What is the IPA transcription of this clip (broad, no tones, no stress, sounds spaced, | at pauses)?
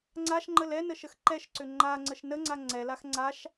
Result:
ŋ͡ǀ a ʃ ŋ͡ǃ ə l ɛ n ə ʃ ə x ǃ ɛ ʃ ǀ ʏ ŋ͡ǃ a ŋ͡ǀ ə ʃ n ə ŋ͡ǀ a ŋ͡ǀ ɛ l a x ŋ͡ǀ a ʃ